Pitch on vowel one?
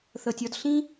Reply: low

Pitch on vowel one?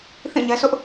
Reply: falling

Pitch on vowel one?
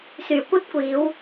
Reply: low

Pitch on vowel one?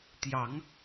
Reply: rising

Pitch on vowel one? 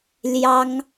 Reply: high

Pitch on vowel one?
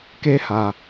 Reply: high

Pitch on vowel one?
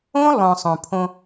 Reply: high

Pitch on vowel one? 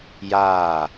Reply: falling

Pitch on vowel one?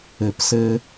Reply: low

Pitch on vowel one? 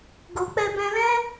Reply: low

